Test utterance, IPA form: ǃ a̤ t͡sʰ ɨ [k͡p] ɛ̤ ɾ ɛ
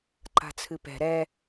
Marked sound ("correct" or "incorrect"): incorrect